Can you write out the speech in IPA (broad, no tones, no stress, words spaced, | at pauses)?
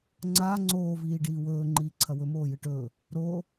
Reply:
ŋ͡ǀaː ŋ͡ǀoː viːɖiːwɵː ŋ͡ǃiːǀʰɐwɵ moːjɨʈɵː | ɾoː